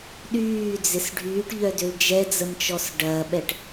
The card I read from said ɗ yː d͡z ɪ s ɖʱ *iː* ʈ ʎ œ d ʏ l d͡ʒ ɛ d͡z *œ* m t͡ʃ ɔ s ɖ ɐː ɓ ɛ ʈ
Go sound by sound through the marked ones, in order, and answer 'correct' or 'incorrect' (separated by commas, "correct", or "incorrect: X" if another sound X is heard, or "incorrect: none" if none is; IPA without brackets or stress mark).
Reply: incorrect: yː, incorrect: ə